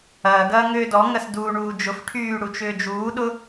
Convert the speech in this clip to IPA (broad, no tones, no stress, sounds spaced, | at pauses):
ɐː ɡ ɐː ŋ ʏː d ɔ ŋ ɐ s d uː ɳ uː d͡ʒ ʊ f ʈʰ yː ɽ u t͡ʃ ʏː d͡ʒ uː ɗ ʊ